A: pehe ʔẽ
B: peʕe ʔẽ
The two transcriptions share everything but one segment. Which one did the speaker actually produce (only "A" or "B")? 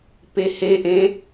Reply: A